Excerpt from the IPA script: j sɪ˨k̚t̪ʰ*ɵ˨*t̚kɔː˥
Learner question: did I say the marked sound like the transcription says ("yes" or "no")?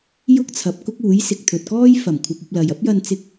yes